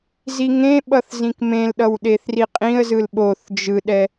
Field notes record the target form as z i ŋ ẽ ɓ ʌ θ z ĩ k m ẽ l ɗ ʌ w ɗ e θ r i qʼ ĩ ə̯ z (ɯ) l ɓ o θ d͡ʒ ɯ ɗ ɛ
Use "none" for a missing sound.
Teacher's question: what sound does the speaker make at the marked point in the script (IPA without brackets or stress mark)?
ɯ